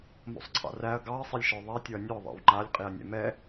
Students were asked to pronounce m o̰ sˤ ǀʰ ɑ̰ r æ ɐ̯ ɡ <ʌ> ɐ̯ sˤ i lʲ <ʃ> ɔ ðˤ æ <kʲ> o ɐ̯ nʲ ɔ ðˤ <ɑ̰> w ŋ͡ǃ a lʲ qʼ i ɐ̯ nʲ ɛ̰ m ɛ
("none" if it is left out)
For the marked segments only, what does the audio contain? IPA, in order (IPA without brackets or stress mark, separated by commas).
ɑ, ʃ, tʲ, ɑ̰